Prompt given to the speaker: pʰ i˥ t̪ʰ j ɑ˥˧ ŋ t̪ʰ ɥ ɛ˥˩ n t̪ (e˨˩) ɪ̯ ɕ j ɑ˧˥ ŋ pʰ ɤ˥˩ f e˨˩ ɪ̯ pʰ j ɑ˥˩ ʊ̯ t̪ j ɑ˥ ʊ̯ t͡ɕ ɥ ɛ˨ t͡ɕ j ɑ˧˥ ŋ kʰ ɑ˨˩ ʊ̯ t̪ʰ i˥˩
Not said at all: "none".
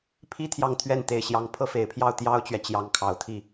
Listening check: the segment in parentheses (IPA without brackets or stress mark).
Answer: e˨˩